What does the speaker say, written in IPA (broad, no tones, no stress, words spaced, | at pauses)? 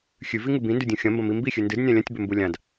xʲʉviŋɨ bĩndʉdʲũ xʲɐ̃mbɐ̃mi mbixʲʉ ndɨdnʲã lʲɐ̃tʲbɵmbu lʲãd